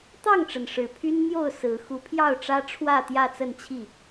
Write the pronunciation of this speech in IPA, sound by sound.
t̪ ɑ˥˨ ŋ ʈ͡ʂ ə˩ n ʂ ɻ̩˨˩ pʰ y˦ n n̪ j o˥˨ ʊ̯ s ɹ̩˨˦ x u˨˦ pʰ j ɑ˥˨ ʊ̯ ʈ͡ʂ ä˦ ʈ͡ʂʰ w ä˥˨ t̪ j ä˥˨ t͡s ə˥˨ n t͡ɕʰ i˥˨

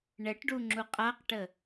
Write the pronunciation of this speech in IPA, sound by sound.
ɳ ɛ ʈ ɖ u ŋ͡ǁ u qʼ a q ʈ ə

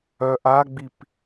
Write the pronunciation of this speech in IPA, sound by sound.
œ ʔ a ɡ͡b i p

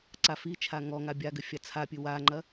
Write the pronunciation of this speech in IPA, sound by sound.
ǀ a f i t͡ʃʰ a ŋ ɔ ŋ a bʲ a ɡ ɘ fʲ a t͡sʰ a pʲ ɨ w a ŋ͡ǃ ɐ

